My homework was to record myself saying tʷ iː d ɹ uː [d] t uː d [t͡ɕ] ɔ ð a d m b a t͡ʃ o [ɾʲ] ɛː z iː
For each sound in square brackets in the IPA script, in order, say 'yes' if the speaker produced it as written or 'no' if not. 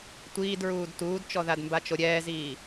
yes, no, yes

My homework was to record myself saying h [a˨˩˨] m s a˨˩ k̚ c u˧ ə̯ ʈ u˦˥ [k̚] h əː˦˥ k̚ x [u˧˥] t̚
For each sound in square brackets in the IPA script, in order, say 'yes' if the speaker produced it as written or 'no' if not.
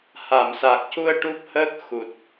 yes, no, no

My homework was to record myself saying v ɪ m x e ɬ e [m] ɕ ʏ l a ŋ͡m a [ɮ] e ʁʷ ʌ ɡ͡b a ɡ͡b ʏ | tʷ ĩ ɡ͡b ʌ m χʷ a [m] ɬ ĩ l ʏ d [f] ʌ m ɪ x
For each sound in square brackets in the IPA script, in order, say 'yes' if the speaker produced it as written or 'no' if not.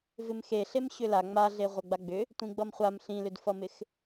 yes, yes, yes, yes

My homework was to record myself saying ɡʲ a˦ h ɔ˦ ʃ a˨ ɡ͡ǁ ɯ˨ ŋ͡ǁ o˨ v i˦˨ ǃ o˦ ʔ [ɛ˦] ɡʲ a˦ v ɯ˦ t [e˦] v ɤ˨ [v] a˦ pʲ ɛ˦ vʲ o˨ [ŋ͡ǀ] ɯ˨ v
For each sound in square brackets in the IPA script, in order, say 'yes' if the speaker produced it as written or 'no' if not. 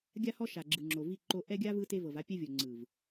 yes, yes, yes, yes

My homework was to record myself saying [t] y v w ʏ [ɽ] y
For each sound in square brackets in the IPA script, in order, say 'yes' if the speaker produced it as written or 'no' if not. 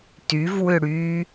yes, yes

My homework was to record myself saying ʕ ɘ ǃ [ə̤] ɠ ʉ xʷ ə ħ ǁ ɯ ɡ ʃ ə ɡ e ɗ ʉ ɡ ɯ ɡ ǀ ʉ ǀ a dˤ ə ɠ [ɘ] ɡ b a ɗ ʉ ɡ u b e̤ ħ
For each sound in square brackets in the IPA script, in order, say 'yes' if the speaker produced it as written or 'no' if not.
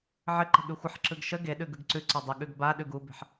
yes, no

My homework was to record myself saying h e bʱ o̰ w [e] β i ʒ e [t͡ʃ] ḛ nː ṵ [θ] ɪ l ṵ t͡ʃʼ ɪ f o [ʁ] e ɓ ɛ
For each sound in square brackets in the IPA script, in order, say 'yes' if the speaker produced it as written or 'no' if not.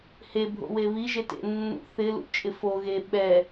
yes, no, yes, no

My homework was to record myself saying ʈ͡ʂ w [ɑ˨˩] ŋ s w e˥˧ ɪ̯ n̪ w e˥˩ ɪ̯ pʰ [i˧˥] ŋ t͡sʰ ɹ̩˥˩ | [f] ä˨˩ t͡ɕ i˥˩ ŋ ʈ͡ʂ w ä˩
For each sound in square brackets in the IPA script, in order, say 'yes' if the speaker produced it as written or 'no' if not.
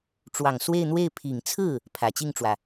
yes, no, no

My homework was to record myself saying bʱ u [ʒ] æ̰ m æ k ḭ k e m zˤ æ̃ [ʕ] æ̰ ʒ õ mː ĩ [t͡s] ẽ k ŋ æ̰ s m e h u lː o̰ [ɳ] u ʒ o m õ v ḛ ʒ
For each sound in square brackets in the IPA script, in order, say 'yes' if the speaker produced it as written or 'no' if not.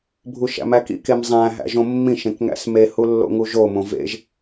no, no, no, no

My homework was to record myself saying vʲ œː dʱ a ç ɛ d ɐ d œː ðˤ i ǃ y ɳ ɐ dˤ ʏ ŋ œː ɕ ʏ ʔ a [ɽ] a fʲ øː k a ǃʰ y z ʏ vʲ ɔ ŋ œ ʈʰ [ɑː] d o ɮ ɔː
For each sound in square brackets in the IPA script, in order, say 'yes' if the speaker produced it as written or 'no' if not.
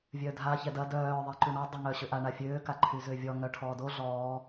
no, no

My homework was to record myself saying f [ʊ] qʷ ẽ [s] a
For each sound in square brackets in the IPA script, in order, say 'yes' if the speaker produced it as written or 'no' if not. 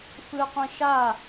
no, no

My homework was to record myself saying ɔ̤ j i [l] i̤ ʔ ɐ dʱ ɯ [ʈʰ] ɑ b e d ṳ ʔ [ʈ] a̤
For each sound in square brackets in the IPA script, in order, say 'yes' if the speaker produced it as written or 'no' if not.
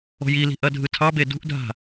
yes, no, no

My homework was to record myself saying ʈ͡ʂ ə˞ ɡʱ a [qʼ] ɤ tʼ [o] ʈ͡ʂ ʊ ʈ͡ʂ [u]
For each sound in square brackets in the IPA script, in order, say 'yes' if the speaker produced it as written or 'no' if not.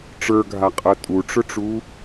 yes, no, no

